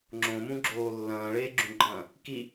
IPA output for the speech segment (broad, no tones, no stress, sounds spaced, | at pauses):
ŋ͡ǁ õ m ũ ɡ͡ǁ oː lː ɐ̃ː ɭ eː ɡ͡ǁ ũ ɡ͡ǃ ɐ̃ː | k i